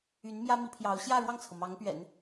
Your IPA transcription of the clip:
y˧˥ n m j ä˥ m i˧˥ pʰ j ɑ˧˥ ʊ̯ ɕ j ä˥˧ ɻ w ɑ˥˩ ŋ t͡sʰ ɤ˩ m ɑ˧˥ ŋ p ɥ ɛ̰˨˩˦ n

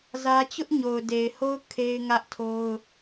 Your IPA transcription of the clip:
z ä˦ t͡ɕ ʊ˦ ʔ ɲ o˨ ʊ̯ d e˨ ɪ̯ h o˦ ʊ̯ kʰ e˦ ɪ̯ ŋ ä˦ ʔ tʰ o˦ ʊ̯

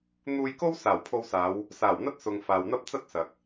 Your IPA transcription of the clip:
n̪ uː˧ j k o˥ w s aː˨˩ w pʰ o˧ w s aː˨˧ w | s aː˨˩ w n̪ ɐ˥ t̚ s ʊ˨ ŋ f aː˨ w n̪ ɐ˥ p̚ t͡s ɐ˥ t̚ s ɐ˨ k̚

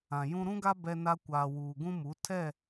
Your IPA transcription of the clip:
ã˨ j ũ˦ ɾ ũ˦ ɡ a˦ b ɛ˦ n a˦ kʷ aː˨ w uː˨ ɡ ũ˦ m u˨˦ tʰ ɛ˦˨

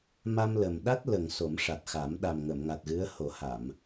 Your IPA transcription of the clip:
m a˧ m l ə˨˩ m ɗ a˦˥ t̚ l ə˨˩ ŋ s o˨˩˦ m ʂ a˨˩ t̚ x a˨˩˦ m ɗ a˨˩ m ŋ ə˨˩˨ m ŋ a˨˩ t̚ ɣ ɨ˧˥ ə̯ h o˨˩˦ h a˨˩˨ m

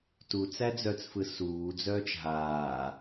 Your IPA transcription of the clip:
t u t͡s æ d͡z œ t͡s f ɯ s uː d͡z œː t͡ʃ ɦ aː

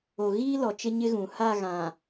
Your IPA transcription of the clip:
o˨ ɣ iː˦ l ɔ˨ t͡ʃ ɪ˦ ɲ ɪ˦ ɣ ũ˨ h a˦˨ ɣ ã˨

